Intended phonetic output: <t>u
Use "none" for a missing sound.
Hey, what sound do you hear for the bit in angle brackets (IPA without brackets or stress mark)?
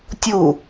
tʲ